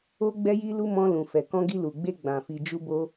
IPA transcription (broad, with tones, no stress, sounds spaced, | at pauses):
o˧ ɡ͡b ɛ˧ j i˧ l u˧ m ɔ̃˧ l ũ˨ f ɛ˨ k ɔ̃˧ ɡ i˧ l u˨ ɡ͡b e˧ ɡ͡b ã˨ f i˨ d͡ʒ u˧ b o˧